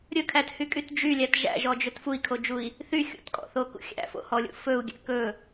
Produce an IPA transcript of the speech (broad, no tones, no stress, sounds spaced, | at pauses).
ɾʲ ɵ kʰ æ t h y kʼ y t d͡ʒ y lʲ æ t ʒ æ̰ ʒ ɔ d͡ʒ ɵ t f u i̯ kʰ o d͡ʒ u i̯ | θ y xʲ ṵ t kʼ ɔ̰ θ o k ṵ xʲ æ̰ f o̰ h ɔ lʲ ṵ f ɵ u̯ ɡʲ æ̰ k ɵ